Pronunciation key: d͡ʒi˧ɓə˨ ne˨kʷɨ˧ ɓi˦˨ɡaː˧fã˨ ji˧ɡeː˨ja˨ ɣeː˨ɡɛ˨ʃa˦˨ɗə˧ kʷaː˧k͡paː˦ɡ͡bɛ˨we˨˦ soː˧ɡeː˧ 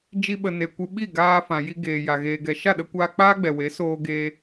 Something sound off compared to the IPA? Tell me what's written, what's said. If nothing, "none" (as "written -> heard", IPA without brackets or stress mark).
none